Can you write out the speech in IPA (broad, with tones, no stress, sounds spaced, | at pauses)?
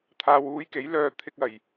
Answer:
t̪ʰ aː˨ w uː˧ j k e˨˥ j l œː˧ t̪ʰ ɪ˧ k̚ ɐ˨˩ j